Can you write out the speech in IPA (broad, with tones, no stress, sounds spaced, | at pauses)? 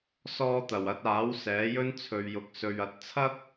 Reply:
s ɔː˧ t̪ ɐ˨˩ w ɐ˧ t̚ aː˨˥ w s ɛː˨˥ j ɵ˥ n t͡sʰ ɵ˨ ɥ j ʊ˨ k̚ s ɵ˨ ɥ ɐ˨˥ t̚ t͡sʰ ɐ˥ k̚